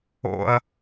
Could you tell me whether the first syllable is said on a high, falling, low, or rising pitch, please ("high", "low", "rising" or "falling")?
high